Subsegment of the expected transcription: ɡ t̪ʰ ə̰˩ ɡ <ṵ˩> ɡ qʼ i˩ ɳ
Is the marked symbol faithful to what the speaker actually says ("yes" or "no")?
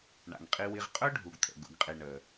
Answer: yes